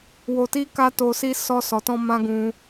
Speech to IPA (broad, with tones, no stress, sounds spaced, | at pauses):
w o˧ t i˦ k a˦ t o˧ s i˦ s ɔ˧ s ɔ˨ t ɔ̃˧ m ã˦ ɡ ũ˧